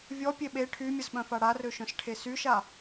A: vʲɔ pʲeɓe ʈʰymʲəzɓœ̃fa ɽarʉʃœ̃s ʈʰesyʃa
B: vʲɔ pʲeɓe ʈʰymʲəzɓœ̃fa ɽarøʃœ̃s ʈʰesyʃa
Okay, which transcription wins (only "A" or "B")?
B